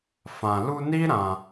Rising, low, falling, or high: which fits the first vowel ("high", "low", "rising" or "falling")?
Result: low